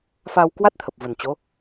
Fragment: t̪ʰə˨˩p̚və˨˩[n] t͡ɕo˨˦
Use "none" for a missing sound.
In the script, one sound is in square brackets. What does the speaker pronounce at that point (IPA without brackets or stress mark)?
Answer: n